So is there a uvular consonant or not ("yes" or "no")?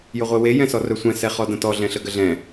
yes